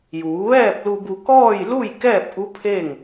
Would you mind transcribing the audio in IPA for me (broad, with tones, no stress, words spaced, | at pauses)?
juː˩˧ʋɛː˥˨p̚lu˧bu˧ kɔː˥˨jlu˥˨j kɛː˥˨p̚ʔu˧˥ pʰe˥˨ŋ